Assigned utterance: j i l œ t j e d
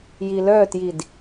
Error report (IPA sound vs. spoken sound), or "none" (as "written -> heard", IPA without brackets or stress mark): e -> i